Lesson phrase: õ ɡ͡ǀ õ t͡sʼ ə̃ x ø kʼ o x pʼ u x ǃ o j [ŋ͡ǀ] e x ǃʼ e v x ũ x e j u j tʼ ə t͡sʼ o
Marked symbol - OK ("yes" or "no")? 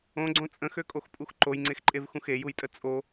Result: yes